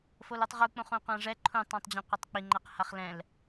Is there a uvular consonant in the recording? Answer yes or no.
yes